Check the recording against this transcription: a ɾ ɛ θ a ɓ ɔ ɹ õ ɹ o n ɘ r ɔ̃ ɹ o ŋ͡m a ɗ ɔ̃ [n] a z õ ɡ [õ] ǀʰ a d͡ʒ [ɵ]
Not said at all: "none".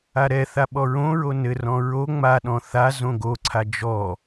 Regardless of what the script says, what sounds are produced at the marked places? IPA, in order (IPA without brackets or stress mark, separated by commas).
θ, o, ɔ